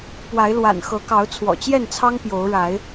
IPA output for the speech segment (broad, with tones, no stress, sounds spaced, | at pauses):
p w a˨˦ ɪ̯ l w a̰˨˩ n x ɤ˨˦ k ɑ˨˦ ʊ̯ t͡sʰ w ɔ̰˨˩ t͡ɕ j ɛ˥˨ n t͡sʰ ɑ˦ ŋ p j o˨˦ ʊ̯ ɻ a˨˦ ɪ̯